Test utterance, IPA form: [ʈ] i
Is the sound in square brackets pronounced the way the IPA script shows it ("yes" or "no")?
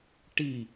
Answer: yes